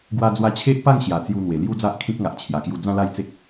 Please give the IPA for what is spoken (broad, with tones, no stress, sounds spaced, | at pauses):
ɡ w a˧ d͡z w a˧ t͡ɕʰ e˦ ʔ p a˥˧ ŋ ɕ j a˨˩ t͡s j u˧ n̪ w e˨˩ l j u˦ d͡z a˦ ʔ kʰ ĩ˦ k̚ ŋ a˨ ʔ t͡ɕʰ j a˨˩ k j u˧ d͡z ã˥˧ l a˥˧ j t͡s e˦ k̚